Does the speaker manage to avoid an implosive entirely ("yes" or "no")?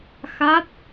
yes